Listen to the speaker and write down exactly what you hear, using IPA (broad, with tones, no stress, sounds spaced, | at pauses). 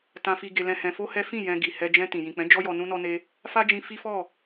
t ã˧ f i˧ ɡ e˧ l ɛ̃˧ h ɛ̃˧ f o˦ h ɛ˦ f ĩ˦˨ j ɛ̃˧ ɡ i˨ h ɛ˧ d͡ʒ ɛ̃˧ t ĩ˨ j ĩ˨ k͡p ɛ̃˨˦ d͡ʒ ɔ˦ j ɔ˧ n ũ˦ n ɔ˦ n e˦ | f a˦ d͡ʒ ĩ˧ f i˦ f ɔ˦˨